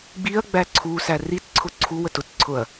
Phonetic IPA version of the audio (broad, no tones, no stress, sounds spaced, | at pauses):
ɡ͡b i ɐ̯ ɡ͡b æ ǀʰ u s æ r i t ǀʰ ʊ ǀʰ u w ə t ʊ t ǀʰ ʊ ɐ̯